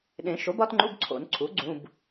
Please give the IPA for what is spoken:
ɗ ẽ˨˩˦ ʃ o˩˥ b ɒ˩˥ t ŋ͡ǃ u˧˥˧ b ǀʰ o̰˨˩˦ n ǀʰ u˩˥ ɡ͡ǀ ũ˧˥˧ b

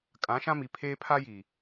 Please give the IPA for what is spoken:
kʼ ã˨˦ ʃ ã˦ m i˨ pʰ eː˦ pʰ a˦ j i˨

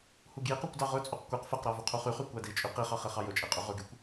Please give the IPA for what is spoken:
h u ɡ j i q u kʷ d ɑ ʁ ɵ t͡sʼ u q kʷ ɛ q f ɛ q ɾ ɑ v ɵ qʰ u χ y χ y kʷ æ d i t͡ʃʼ y q i χ ɑ χ ɛ χ ɑ j ɵ t͡ʃʼ e qʼ y ʁ ɵ ɡ y kʷ

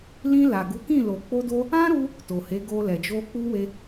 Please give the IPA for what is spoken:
l ĩ˧ l a˨ ɡ u˨˦ k ĩ˦˨ l o˨ k͡p o˧ d o˧ | ã˦ ɾ u˧ | t o˨ h e˨˦ ɡ o˧ l ɛ˨ d͡ʒ o˧ k͡p u˦ w e˧

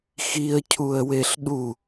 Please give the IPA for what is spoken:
x i ə̯ cʰ u ə̯ w e ɬ ɗ u

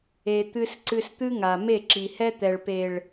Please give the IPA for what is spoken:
e˧ t̪ ɨ˦ s ǀ ɨ˧ s t̪ ɨ˦ ŋ a˨ m e˦˨ ǁ i˨ h ɛ˦ t̪ ɛ˨ ɭ p e˨ ɭ

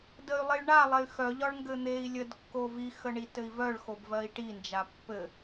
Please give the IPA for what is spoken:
d ə y̯ lˠ i ɭ ɳ a lˠ e y̯ x œ ʎ ɒ ɭ ŋ ɡ ɘ n̪ e i̯ lʲ ə d kː o v i x ə ɳ i t ɘ i̯ v œ ɭ x o b v ɜ i̯ ʈ i n d͡ʒ a pː ɘ

